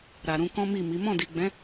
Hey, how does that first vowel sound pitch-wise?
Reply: low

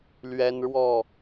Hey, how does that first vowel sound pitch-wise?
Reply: high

